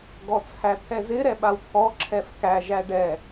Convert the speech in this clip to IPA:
ɡ ɔ t͡sʰ æ t̪ʰ ɛ z ɪ ɾ ɛ ɓ a w t̪ʰ ɔ ǁʰ ɛ f k æ ʒ æ ɖ ɛ

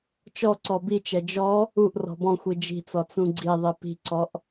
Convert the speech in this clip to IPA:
t͡ʃ ɔ ǀ ɔ b i t͡ʃ ɛ d͡ʒ ɔ | u ʔ r ɔ̤ b ɔ̃ xʷ i d͡ʒ i̤ t͡s ɔ t͡s ũ ɡ͡ǀ i ðˤ i p i̤ ǀ ɔ ʔ

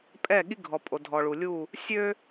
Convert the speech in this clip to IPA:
pʼ ɛ˦˨ ɠ i˦ ɡʱ ɔ˨ pʼ o˨ dʱ ɔ˨ ɭ u˨ lʲ u˦˨ | sʲ ø˦

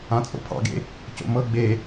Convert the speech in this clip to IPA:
ã t͡sʼ o̰ pʰ ɑ̰ ɡ ḛ | c o̰ m ɤ ɡ͡b e

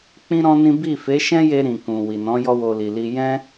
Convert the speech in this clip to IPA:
k͡p ĩ˦ ɾ ɔ̃˦ n ĩ˦ b i˦˨ f e˨˦ ʃ ɛ̃˦ j e˧ ɾ ĩ˨ k ũ˨ w i˨ n ɔ̃˨˦ j ɔ˦ w o˧ l i˨ l i˧ j ɛ̃˦

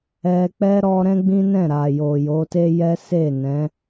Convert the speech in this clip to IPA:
ɛ˧ k͡p ɛ˦ ɾ ɔ˦ ɾ ɛ̃˦ ɡ͡b ĩ˦ n ɛ̃˦˨ ɾ a˨ j o˨ j o˨˦ t e˦ j ɛ˦ s e˦˨ n ɛ̃˨˦

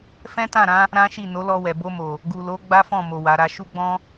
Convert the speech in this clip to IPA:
f ɛ̃˦ t ã˦˨ ɾ ã˨˦ | ɾ ã˦ ʃ i˦˨ n o˨˦ l ɔ˧ w ɛ˨ b o˧ m o˨ | ɡ u˨ l o˨˦ ɡ͡b a˦ f ɔ̃˦˨ m o˨ w a˨˦ ɾ a˦ ʃ u˦ ɡ͡b ɔ̃˦

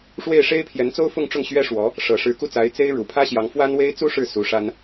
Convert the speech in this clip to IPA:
ʂ w e˥˩ ɪ̯ ʂ e˥ ɪ̯ pʰ j ɛ˧˥ n t͡s o˥ ʊ̯ f ʊ˥˧ ŋ ʈ͡ʂ ʊ˥˩ ŋ ɕ ɥ ɛ˥ ʂ w ɔ˧˥ | ʂ ɤ˨˩ ʂ ɻ̩˧˥ k u˥˩ t͡s a˧˥ ɪ̯ t͡s e˥ ɪ̯ ɻ u˨˩ pʰ ä˥ ɕ j ɑ˧˥ ŋ f w a˥ n w e˥ ɪ̯ t͡s u˥ ʂ ɻ̩˥˩ s u˧˥ ʂ a˥ n

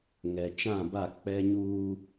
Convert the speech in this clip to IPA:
ŋ ɛ˨ t͡ʃ ã˦˨ b a˦˨ k͡p ɛ˦ ɲ uː˦

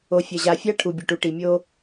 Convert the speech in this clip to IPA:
o˨ fʲ ɐ˨ ʑ a˨ fʲ a˦ ʈʰ u˨ bʲ ɘ˨ ʈ u˨ ʈ i˨ mʲ o˦

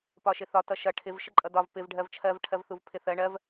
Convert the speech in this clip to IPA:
p ɒ ʃ ɪ θ ɒ t ʌ ʃ ʌ ʈʰ ɪ v ʃ ə ǃʼ ʌ d ɒ v p ɪ v ɖʱ ɜ v t͡ʃʰ ɜ v ʈʰ ɜ v θ u v pʰ ɪ θ ɜ ɳ ɜ v

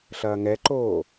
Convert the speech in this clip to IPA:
ɬ ɐː ŋ ɛ ǃ oː

